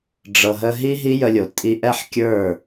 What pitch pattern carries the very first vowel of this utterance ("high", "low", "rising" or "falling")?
low